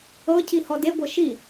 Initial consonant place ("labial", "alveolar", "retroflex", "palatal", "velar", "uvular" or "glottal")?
palatal